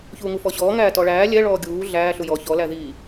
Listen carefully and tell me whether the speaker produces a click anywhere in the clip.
no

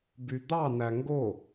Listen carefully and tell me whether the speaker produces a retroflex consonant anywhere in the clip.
no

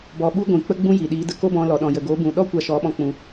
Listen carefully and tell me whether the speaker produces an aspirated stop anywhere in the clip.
no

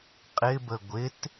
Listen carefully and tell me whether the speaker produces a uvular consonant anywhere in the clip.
yes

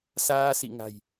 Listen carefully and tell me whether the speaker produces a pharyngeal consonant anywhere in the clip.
no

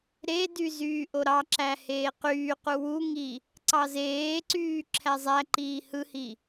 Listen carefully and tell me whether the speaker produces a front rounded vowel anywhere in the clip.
yes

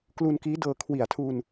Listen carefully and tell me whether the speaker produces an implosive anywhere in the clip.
no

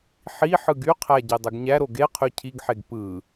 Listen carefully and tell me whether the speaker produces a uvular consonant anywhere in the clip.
yes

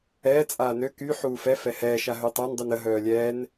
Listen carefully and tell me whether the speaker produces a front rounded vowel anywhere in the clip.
yes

